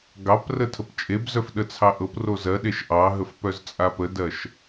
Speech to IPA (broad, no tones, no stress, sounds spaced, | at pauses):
ɡ ɑ p r ə tʰ ə p t͡ʃʼ e b z œ f ɗ ə t͡sʰ ɑ ʔ ɤ p r o z ɜ ɗ e ʃ ʔ ɑ ɦ ə f p œ z t͡sʼ a p ə d ɜ ʃ